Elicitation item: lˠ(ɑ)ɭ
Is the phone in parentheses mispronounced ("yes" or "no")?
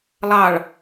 no